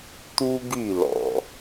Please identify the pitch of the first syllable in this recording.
high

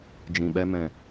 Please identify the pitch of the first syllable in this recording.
low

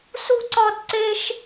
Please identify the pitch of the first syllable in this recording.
high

